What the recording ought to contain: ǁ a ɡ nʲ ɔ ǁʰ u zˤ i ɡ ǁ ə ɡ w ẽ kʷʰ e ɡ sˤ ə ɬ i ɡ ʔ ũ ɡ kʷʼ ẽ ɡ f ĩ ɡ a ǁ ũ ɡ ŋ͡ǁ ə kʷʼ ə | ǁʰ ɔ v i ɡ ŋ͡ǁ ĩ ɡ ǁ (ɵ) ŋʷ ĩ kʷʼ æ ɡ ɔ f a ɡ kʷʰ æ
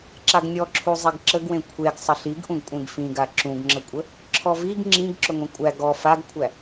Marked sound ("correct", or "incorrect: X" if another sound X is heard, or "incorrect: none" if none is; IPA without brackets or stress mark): correct